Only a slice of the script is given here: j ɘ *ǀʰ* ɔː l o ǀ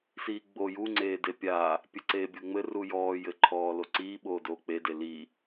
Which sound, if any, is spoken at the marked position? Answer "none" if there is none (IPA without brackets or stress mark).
ǃʰ